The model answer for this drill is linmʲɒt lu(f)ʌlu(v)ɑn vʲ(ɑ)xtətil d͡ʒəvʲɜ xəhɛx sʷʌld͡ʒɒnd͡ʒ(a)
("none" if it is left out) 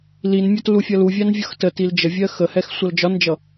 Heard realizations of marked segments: fʲ, vʲ, ʌ, ʌ

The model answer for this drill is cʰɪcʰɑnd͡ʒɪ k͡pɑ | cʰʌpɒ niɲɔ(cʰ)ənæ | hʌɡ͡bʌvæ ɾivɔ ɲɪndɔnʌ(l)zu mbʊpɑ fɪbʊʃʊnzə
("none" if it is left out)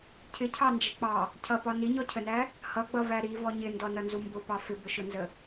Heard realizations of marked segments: cʰ, n

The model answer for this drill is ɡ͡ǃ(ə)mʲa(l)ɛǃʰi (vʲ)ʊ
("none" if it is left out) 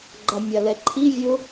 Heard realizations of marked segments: a, l, vʲ

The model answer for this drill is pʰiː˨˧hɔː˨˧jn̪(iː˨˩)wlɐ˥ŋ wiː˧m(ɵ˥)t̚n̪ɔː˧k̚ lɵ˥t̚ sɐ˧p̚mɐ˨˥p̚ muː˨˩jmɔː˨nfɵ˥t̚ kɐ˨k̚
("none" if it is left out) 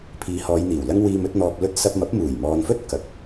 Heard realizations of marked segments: iː˨˩, ɵ˨˥

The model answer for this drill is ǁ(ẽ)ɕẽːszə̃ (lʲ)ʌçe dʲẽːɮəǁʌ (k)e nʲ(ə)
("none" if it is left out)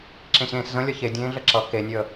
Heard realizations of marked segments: ẽ, lʲ, k, ə

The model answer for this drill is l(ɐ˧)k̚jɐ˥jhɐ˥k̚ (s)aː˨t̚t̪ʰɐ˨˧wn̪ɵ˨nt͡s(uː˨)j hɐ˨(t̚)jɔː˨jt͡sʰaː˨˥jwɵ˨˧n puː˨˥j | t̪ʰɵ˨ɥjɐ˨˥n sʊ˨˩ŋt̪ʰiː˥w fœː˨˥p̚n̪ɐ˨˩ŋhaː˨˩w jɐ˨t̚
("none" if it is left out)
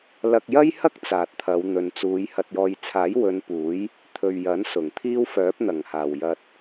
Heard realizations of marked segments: ɐ˧, t͡s, uː˨˧, t̚

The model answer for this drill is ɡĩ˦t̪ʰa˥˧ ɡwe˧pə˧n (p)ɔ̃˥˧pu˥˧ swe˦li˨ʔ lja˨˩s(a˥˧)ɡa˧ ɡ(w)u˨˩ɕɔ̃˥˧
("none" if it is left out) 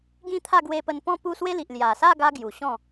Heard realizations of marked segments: p, a˥˧, j

